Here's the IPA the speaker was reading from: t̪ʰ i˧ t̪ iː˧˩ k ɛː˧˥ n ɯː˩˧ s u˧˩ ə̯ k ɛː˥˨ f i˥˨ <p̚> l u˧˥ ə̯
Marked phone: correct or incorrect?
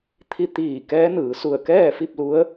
correct